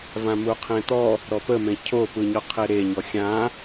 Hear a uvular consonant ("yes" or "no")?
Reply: yes